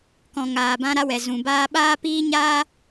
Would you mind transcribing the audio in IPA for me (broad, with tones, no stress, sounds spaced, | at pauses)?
k ɔ̃˨ ŋ aː˨ b ã˧ ɾ a˧ w ɛ˨ z ũ˨ b aː˧ ɓ aː˦ p iː˦ ɲ aː˦